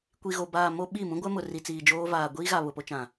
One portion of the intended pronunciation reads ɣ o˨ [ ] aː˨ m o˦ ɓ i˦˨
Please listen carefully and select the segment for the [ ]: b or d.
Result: b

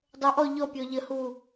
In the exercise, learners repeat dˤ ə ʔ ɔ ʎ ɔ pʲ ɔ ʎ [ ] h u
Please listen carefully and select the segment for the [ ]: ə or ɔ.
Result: ə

